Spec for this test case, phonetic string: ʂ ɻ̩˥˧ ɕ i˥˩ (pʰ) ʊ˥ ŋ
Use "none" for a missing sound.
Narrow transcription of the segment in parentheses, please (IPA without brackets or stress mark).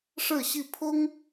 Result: pʰ